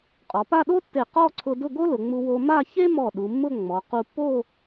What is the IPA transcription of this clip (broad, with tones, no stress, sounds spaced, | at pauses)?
qʼ ɔ˩˧ p a˥˧ ɗ o˥ tː e˧˩ q ɔ˥˧ ǀʰ ʊ˧ d ʊ˥˧ ɡ o˥ l ʊ˩˧ ŋ͡m u˧ w o˧ m a˥˧ ç e˥ m ɔ˧˩ ɗ u˩˧ mː ʊ˥˧ ŋ͡m ɔ˩˧ q u˧ pː o˥˧